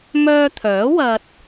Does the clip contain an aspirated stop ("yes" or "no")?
yes